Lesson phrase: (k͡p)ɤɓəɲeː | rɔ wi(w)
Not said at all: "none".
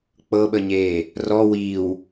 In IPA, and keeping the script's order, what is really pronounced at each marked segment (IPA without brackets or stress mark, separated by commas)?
k͡p, w